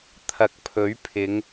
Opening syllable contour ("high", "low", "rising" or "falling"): low